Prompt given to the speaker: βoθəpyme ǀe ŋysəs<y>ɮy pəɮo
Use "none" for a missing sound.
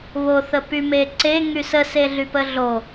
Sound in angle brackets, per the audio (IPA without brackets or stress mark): e